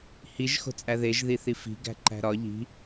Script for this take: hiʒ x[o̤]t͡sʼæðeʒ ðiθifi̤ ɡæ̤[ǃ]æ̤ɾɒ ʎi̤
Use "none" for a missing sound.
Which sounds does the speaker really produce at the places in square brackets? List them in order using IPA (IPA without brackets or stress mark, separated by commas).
o̤, ǃ